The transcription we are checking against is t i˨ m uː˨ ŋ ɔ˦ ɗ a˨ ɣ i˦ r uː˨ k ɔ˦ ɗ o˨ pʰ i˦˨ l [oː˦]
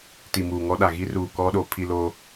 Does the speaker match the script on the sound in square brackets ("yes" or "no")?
yes